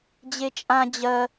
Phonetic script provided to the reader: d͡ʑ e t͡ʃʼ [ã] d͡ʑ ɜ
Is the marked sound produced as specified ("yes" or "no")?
yes